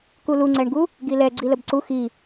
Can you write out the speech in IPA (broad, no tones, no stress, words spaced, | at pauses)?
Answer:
kuluŋ͡ǀɛɳɡu | ɡilɛ ɡ͡ǀiləbǀu xi